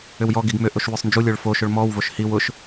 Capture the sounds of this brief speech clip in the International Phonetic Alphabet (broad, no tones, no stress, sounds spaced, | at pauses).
ʏ w j ɔ ɡ i ɡ m ʏ ʔ o ʃ w ʏ sˤ n d͡ʒ u lʲ ə˞ ɭ f o ʃ ʊ ɭ m ɔ w v o ʃ h i w ʊ ʃ